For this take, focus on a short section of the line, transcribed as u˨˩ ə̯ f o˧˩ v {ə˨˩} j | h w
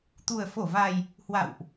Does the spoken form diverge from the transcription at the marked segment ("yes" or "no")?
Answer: yes